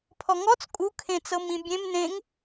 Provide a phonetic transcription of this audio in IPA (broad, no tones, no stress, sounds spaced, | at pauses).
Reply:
pʰ ɔ ŋ ɔ t͡s kʼ u kʰ ẽ t͡s ɤ m ĩ bʲ ẽ m n ẽ ŋ